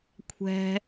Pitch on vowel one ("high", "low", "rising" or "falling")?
high